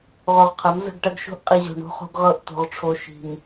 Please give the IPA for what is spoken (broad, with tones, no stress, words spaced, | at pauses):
ʁo˨ʁqʰɐ˨˦mzə̤˦˨ɡʈɐ˦ɡ ʃo̤˦ʔqʼi˨ʑo̤˨ ɳo̤˦χo̤˦ɡʁɤ˦˨ʔ t̪o̤˨ʁʈ͡ʂʰo˨ ʃi̤˨m